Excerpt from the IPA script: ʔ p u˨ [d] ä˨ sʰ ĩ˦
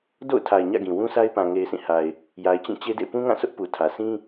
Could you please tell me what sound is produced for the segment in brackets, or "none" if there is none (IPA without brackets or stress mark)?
tʰ